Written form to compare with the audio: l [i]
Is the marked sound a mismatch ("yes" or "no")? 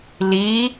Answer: no